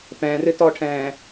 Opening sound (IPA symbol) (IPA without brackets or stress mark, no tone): p